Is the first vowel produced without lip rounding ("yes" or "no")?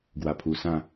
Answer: yes